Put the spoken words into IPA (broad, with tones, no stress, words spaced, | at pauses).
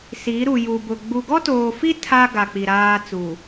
si˨˦ɾu˨ju˨ bʊ˨ ɡ͡bu˨ɡɔ˦toː˨fi˦ tʰa˦ ɡa˨ k͡pi˨ɾaː˦ t͡suː˨